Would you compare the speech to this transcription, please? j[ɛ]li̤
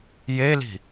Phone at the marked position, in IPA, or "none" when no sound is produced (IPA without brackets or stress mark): e